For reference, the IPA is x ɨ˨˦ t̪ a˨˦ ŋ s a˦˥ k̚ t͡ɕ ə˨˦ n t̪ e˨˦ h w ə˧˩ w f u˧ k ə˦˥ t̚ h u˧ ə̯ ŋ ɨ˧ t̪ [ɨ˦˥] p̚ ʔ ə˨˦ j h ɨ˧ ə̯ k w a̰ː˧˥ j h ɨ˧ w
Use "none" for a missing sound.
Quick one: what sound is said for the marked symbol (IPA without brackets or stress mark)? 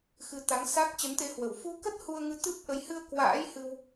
ɨ˦˥